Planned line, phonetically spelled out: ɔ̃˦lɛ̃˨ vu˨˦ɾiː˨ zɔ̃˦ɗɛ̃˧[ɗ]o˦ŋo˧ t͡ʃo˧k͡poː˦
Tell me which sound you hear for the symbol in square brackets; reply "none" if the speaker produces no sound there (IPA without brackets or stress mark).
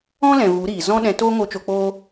t